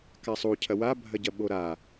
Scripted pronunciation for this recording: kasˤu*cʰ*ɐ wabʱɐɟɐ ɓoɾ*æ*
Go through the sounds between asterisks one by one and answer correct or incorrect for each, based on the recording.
correct, incorrect: a

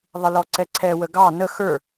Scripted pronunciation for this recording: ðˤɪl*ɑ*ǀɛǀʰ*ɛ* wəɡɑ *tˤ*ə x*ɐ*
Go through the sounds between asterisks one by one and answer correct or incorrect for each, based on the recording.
incorrect: ɔ, correct, incorrect: n, incorrect: ə˞

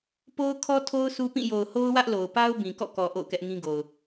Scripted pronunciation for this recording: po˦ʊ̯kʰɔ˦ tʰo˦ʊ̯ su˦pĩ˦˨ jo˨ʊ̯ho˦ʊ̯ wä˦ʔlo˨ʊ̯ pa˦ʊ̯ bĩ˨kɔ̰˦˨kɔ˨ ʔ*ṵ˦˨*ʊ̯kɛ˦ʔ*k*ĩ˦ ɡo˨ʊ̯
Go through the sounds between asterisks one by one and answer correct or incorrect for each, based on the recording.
incorrect: o̰˦˨, incorrect: ŋ

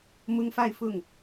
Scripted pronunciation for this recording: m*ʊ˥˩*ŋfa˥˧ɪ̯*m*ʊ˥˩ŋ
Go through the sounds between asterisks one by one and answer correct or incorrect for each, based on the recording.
incorrect: ʊ˥, incorrect: f

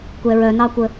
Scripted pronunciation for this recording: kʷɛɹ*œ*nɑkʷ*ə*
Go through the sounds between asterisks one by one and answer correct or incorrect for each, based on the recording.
correct, correct

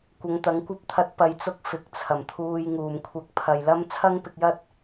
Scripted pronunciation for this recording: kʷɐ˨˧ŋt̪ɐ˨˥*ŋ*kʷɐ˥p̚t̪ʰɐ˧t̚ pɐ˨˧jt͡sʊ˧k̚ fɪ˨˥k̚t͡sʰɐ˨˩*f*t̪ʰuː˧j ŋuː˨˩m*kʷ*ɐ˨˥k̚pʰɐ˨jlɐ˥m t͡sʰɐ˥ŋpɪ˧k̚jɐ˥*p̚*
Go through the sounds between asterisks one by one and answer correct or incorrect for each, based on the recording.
correct, incorrect: m, incorrect: kʷʰ, incorrect: t̚

